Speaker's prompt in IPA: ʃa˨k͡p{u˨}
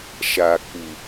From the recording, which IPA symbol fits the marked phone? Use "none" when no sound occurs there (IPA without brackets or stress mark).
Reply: u˨